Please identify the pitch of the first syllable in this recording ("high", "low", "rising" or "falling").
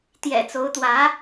low